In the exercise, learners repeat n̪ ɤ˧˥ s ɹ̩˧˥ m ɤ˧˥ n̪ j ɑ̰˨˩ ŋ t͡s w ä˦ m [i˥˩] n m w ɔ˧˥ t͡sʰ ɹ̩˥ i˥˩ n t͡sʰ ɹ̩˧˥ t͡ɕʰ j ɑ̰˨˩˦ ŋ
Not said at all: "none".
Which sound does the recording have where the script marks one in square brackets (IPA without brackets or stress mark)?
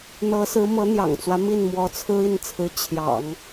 i˥˩